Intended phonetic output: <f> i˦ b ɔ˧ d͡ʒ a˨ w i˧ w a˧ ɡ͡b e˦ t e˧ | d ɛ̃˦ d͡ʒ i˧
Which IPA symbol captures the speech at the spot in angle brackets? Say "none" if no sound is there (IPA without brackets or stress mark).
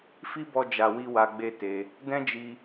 f